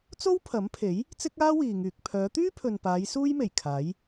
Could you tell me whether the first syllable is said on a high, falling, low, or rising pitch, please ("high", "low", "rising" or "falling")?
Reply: high